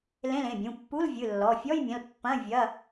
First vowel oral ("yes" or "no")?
no